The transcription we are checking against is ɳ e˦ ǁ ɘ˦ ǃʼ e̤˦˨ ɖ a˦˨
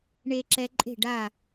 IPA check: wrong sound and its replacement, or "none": ɘ˦ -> ɛ˦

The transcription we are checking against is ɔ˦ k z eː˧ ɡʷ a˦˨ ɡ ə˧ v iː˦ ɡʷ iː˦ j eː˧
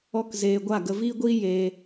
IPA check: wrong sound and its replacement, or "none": none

